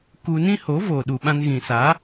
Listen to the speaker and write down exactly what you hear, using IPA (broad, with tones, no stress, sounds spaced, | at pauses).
k u˧ n ĩ˦ h o˨˦ v o˨ ɗ u˨ ɓ ã˧ n ɣ ĩ˨ s a˨˦